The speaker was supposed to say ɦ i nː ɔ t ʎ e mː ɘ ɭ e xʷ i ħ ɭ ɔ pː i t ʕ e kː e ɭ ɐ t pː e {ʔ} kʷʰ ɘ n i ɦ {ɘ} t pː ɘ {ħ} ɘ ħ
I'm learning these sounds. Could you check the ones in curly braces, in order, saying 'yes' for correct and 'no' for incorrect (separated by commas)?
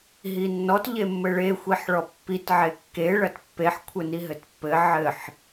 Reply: no, yes, no